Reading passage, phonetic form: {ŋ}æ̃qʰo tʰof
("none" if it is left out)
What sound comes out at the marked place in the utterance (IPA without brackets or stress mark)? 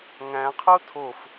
ŋ